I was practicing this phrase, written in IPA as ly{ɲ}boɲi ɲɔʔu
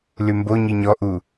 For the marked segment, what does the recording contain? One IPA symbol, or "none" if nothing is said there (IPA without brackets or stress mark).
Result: m